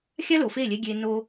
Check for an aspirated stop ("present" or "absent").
absent